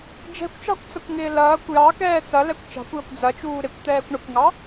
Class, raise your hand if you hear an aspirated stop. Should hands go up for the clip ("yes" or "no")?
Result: no